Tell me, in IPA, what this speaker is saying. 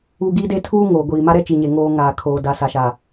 u˦ ɡ i˦ d e˦ tʰ uː˦ ŋ oː˨ ɡʷ iː˨ m a˦ ɾ ɛ˦ t͡ʃ i˨ ɲ e˨ ŋ oː˦ ŋ aː˨ kʰ oː˨ d a˨ s a˨ ʃ a˨

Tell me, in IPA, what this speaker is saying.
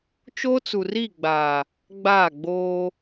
t͡ʃ oː˦ t͡s u˨ r i˦˨ ɡ͡b aː˨ | ɡ͡b aː˦˨ ɡ͡b oː˦

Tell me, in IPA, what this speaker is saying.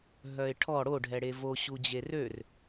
ɦ œ ɪ̯ ʈʰ ɔ ɽ o ɖʱ ɛ ɽ e v o ɕ u d͡ʑ e r ø r

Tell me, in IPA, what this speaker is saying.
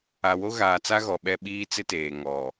a˨ w o˦ ɣ aː˨ t͡s a˦ ɣ ɔ˨ ɓ ɛ˦ ɓ iː˦ t͡s ɪ˦ t eː˨ ŋ ɔ˨

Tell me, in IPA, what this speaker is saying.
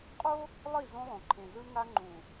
qʼ o˦ | lˠ i˦˨ z õ˦ lˠ õ˨ ǃʰ ẽ˨ z ɯ˦ ŋ a˦ ŋ͡ǃ ũ˨

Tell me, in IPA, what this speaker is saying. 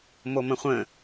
m o m ə̃ χʷ ə̃

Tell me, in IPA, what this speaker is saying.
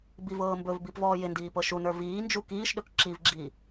b i v ɤː m b ɵ v b i p v ɔː j ɪ n d iː p ɤ ʃ u n ə˞ v iː n d͡ʒ u k iː ʃ ɗ ɵ k ǁ i v ɡ͡ǁ iː

